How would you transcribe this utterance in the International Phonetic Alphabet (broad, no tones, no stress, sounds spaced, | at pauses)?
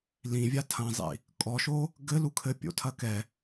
l ĩ vʲ a tʰ ɐ̃ zˤ ḭ | kʼ ɔ ʃ o | ɡ ɘ l u kʰ ɘ pʲ o̰ tʰ ɐ k ɛ